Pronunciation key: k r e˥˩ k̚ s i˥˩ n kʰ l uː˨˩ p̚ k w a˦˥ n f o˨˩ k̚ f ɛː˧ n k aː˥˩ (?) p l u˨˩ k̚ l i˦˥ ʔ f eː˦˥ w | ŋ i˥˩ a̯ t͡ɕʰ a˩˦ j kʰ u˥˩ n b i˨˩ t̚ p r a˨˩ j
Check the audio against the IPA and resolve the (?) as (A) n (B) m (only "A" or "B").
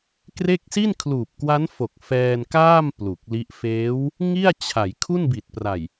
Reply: B